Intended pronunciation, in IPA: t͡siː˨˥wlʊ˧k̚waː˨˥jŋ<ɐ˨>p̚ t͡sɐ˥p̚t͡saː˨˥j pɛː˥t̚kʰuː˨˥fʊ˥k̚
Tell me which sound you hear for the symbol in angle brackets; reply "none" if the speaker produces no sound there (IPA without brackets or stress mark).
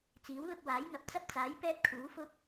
ɐ˨